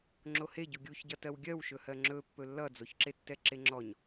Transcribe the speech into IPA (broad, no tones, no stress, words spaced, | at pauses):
ŋ͡ǁoheɟu ɡʲuçɟʌtɜw ɡʲɜwʃɵhɜ ŋ͡ǁɵ pːɵlːʌd͡zoçǁe tːɛǁeŋ͡ǁɔɲ